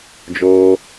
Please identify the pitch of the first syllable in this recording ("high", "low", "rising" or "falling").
high